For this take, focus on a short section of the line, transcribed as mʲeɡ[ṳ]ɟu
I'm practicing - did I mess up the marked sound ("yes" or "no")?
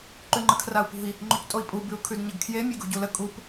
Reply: no